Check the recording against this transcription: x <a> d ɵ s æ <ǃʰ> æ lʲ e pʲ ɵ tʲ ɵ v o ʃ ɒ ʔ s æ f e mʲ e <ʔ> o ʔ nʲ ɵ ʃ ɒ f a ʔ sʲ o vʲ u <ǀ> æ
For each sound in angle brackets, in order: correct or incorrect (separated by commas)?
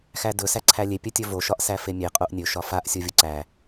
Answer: incorrect, incorrect, incorrect, correct